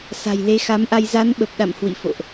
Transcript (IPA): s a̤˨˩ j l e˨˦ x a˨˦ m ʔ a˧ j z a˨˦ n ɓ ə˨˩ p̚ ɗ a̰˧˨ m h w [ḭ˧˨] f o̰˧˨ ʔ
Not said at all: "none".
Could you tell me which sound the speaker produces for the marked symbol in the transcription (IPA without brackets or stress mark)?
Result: ḭ˧˨